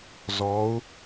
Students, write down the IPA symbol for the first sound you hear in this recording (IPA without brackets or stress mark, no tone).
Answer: z